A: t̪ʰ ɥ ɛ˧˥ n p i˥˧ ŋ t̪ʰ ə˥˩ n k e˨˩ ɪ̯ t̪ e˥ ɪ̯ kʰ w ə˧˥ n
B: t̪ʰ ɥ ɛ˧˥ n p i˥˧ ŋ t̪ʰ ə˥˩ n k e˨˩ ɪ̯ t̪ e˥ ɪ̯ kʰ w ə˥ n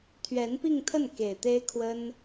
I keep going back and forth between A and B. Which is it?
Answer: B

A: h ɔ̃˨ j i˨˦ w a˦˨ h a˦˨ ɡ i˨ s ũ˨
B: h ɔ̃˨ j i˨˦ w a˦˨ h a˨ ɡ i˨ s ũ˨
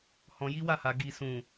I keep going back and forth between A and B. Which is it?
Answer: B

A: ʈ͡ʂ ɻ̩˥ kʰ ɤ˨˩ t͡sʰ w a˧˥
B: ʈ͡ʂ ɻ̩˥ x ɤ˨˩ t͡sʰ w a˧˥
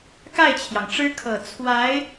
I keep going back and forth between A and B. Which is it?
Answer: A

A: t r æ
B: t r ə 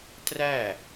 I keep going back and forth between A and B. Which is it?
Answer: A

